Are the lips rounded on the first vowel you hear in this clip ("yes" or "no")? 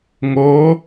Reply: yes